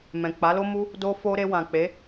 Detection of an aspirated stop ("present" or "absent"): absent